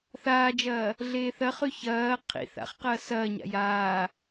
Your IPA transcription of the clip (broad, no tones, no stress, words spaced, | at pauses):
θaːd͡ʒɐː | ɮeːθɐχʉ çɐː qʰḭ θa̰χ qɐːsɐːɲa̰ jaː